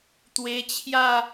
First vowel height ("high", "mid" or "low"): mid